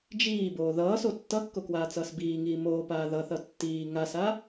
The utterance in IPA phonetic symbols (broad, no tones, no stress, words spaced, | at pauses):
d͡ʒiːboː ðʌːso tːʌkːokwaːt͡sʌːs biːŋiː moːpaː ðʌθʌ tːiː ŋasa